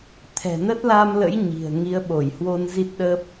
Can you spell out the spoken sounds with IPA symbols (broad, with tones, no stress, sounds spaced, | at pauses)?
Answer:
t̪ʰ ɛ̤˨˩ n ə˦˥ t̚ l a˧ m l ə̰˧˥ j ɲ i̤˨˩ ə̯ ŋ i˨˦ ə̯ ɓ o˧˩ j h w o˧ n z i˦˥ t̚ ɗ ə˦˥ p̚